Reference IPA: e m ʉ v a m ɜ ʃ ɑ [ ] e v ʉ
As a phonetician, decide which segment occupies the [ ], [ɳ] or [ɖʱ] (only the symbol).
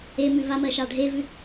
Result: ɖʱ